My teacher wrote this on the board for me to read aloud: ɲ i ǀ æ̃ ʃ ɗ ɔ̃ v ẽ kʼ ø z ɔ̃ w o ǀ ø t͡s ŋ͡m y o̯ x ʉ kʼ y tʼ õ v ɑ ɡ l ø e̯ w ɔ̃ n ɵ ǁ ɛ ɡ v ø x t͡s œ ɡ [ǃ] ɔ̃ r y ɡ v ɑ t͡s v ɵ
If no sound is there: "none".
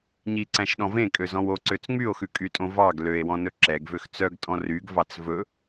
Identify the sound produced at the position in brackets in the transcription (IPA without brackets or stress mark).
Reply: tʼ